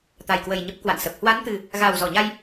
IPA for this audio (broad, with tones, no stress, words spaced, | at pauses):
t̪a˨˩jkwə˨˩j ɲə˦˥p̚kwa̰˧˨nsə˨˩p̚ hwa˨˦nt̪ɨ˨˩ | ɣa˨˩w zɔ˧˩ɲa˧j